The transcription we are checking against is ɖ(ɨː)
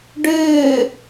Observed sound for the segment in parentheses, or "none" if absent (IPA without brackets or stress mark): ɨː